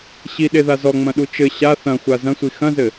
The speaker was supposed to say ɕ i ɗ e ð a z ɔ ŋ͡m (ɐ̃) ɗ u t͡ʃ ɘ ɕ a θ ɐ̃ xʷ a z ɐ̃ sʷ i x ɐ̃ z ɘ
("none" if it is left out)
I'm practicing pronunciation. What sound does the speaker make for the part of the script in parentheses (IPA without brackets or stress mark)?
ɐ̃